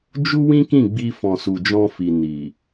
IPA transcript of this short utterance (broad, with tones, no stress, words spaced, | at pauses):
d͡ʒu˦ wĩ˦kĩ˦˨ɡ͡bi˧fɔ̃˨ su˨d͡ʒɔ̃˧fi˨ ni˨